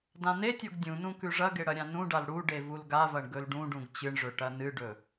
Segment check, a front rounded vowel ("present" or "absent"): absent